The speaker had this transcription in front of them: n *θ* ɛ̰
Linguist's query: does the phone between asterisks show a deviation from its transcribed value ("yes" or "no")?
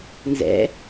yes